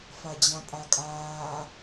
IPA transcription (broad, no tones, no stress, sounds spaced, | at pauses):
f a d͡ʑ ã pʼ a kʼ aː